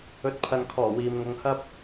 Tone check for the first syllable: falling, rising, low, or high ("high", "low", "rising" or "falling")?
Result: rising